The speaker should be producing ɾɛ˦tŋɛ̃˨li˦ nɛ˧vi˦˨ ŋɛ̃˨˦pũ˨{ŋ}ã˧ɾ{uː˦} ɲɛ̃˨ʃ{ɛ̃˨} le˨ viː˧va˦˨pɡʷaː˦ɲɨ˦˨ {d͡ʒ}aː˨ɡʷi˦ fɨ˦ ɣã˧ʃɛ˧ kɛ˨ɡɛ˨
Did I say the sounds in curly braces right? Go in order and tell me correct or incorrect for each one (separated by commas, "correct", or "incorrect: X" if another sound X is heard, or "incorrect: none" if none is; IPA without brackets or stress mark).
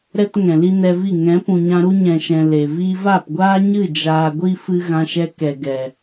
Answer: incorrect: ɲ, incorrect: u˦, correct, correct